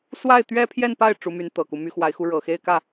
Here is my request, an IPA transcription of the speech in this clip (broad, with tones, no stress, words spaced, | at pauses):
swa˥˩ɪ̯t̪ɥɛ˥pʰjɛ˥˧npa˥˩ɪ̯ ʈ͡ʂu˧˥my˧˥n t̪ɤ˨˩ku˦ my˧˥ xwa˧˥ɪ̯xu˧˥ ɻɤ˨˩xe˥˧ɪ̯kä˥˩